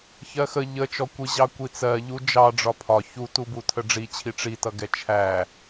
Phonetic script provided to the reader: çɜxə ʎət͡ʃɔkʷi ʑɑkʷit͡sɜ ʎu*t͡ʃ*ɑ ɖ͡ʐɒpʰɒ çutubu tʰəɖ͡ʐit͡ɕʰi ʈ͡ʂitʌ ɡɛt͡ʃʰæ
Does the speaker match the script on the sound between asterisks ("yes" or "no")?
no